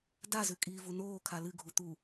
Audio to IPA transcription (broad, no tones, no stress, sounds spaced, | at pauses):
d a z ʉ kʼ iː v u n oː kʰ a l ɨ ɡʱ u t̪ u